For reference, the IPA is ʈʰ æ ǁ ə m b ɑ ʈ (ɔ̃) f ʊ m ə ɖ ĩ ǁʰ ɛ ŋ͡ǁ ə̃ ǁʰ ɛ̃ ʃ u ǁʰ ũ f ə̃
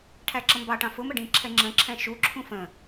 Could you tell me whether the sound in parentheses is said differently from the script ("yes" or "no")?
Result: yes